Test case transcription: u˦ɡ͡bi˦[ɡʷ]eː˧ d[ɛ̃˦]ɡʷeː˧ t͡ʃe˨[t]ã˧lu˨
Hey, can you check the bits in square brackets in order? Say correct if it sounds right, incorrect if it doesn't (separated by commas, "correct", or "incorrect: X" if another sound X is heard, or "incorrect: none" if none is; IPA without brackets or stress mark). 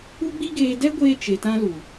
incorrect: ɡ, incorrect: ɛ˦, correct